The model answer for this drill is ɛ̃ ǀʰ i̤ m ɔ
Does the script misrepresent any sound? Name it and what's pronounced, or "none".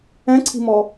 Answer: none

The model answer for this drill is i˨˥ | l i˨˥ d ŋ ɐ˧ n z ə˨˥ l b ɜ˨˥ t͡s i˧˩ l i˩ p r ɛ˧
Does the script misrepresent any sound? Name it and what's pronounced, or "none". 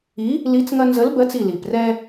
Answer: d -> t͡s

